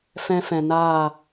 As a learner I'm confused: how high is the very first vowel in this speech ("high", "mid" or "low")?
mid